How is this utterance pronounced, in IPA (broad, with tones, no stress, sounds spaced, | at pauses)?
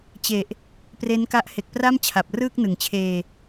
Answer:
t͡ɕ e˨˩ ʔ | p r e˦˥ n k a˦˥ ʔ h e˨˩ k̚ p r a˥˩ m t͡ɕʰ a˨˩ p̚ r ɯː˥˩ k̚ n ɯ˩˦ ŋ t͡ɕʰ eː˧